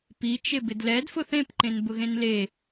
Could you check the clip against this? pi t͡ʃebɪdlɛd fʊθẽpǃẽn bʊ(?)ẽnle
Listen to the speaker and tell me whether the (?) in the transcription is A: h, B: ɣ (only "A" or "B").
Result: B